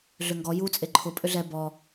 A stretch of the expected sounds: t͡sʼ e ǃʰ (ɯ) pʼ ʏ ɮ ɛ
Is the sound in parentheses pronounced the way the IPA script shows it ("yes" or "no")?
no